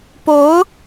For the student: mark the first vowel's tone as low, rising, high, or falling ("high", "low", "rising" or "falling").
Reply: rising